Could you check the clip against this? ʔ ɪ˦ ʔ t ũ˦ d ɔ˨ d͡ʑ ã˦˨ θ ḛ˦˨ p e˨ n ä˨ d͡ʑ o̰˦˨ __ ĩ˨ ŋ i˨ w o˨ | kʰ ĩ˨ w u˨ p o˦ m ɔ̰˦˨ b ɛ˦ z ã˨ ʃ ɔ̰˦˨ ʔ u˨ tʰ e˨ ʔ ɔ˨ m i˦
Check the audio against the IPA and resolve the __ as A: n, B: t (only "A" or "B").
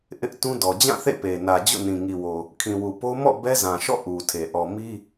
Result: A